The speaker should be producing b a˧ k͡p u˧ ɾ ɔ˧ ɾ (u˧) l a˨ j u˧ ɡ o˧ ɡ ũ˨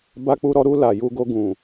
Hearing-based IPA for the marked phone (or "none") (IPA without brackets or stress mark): u˧